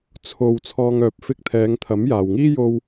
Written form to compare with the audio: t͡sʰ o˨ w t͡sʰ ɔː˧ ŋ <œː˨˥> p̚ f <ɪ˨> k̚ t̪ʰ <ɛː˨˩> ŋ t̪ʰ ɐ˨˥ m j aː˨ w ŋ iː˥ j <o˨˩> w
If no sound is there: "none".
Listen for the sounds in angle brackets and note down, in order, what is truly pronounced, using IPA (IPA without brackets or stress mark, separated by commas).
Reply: œː˨˥, ɪ˧, ɛː˨˧, o˧